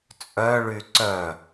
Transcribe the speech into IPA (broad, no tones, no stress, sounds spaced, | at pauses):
t͡sʼ œ ɭ y ǀ œ